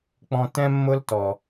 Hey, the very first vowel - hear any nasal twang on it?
yes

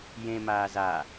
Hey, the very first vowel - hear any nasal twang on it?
yes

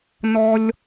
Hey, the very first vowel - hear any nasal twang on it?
no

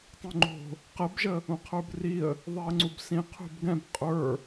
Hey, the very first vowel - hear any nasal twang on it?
yes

